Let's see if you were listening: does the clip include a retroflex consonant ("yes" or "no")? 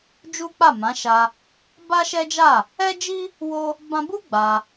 no